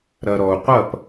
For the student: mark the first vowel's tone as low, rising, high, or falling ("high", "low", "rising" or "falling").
low